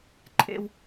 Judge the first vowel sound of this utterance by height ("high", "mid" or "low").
mid